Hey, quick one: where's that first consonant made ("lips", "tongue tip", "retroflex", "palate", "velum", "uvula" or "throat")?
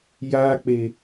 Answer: palate